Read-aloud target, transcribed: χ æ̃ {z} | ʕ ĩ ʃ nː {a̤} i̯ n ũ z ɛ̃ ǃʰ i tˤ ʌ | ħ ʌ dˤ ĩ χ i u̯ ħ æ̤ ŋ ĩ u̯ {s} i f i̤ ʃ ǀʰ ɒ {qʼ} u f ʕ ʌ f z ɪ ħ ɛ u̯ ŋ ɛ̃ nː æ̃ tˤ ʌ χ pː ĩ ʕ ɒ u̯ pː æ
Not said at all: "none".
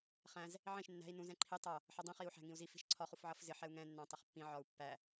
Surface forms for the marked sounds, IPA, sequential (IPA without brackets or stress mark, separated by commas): z, æ̤, z, χ